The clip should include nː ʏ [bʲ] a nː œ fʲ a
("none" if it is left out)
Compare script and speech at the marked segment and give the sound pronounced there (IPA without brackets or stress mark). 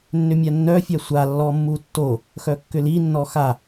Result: mʲ